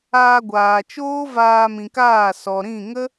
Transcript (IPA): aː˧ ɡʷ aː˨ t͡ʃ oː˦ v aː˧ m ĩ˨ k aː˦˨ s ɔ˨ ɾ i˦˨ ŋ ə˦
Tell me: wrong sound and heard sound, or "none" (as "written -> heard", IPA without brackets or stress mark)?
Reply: i˦˨ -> ĩ˦˨